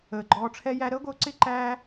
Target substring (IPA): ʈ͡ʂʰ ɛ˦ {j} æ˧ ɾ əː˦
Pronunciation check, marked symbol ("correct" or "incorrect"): correct